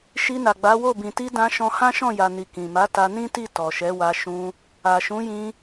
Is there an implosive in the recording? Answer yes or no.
no